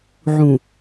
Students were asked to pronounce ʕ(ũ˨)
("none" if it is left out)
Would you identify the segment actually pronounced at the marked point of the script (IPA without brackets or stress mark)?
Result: ũ˨